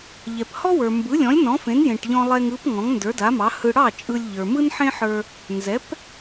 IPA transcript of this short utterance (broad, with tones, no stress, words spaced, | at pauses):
ʎɛ˩phɔ˥wə˞˩ mbɯ˩˥lʲɔ̃˩˥lʲ nɔ̃˩˥fẽ˩˥n jẽ˩ʈʎɔ̃˧lˠɛ˧ŋɯ˩˥p ŋɔ̃˩˥ŋndə˞˩˥da˩˥mɑ˩˥ hɯ˧ ɽɑ˥˩ t͡ʃʼɯ˧lʲ ʎə˞˩mɯ˥nħẽ˥ħə˞˧ | nzɛ˩˥p